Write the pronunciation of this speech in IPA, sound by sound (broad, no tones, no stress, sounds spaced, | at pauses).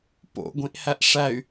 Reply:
p o̰ ɡʷ ĩ ʔ h æ ʔ ʂ æ y̯